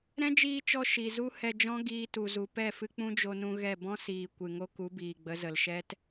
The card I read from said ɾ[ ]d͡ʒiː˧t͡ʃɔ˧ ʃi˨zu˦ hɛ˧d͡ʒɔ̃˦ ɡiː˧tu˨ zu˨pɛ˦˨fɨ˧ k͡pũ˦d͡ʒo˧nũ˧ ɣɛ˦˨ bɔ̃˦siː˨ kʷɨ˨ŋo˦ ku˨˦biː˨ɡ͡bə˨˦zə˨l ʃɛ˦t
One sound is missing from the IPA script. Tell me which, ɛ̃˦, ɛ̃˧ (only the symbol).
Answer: ɛ̃˦